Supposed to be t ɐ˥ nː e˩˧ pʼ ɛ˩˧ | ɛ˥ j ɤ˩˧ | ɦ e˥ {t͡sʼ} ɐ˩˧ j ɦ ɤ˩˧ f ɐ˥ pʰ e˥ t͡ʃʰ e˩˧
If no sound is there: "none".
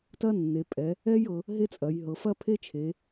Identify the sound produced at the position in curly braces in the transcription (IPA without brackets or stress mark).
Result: t͡sʼ